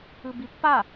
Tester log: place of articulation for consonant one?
labial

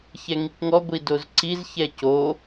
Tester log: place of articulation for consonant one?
palatal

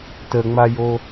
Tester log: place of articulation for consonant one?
alveolar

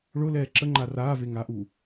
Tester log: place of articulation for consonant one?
retroflex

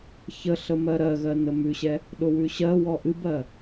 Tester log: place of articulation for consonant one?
palatal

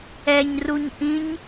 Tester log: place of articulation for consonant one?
palatal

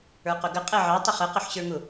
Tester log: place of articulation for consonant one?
uvular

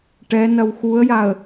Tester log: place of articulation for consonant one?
retroflex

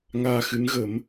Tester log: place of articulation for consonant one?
velar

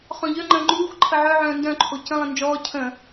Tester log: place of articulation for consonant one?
uvular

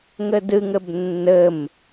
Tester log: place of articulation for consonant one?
velar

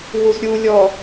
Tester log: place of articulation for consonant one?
glottal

